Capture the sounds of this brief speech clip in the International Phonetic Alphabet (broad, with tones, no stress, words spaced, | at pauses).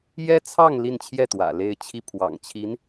jɛ˥t͡sʰɑ˥˧ŋ li˥˧nt͡ɕʰjɛ˥˩t̪wä̰˨˩ le˥˧ɪ̯t͡ɕʰi˥˩pʰwɑ̰˨˩ŋt͡ɕʰi˧˥n